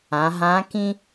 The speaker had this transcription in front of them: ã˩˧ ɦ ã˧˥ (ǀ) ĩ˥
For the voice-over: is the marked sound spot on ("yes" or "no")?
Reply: no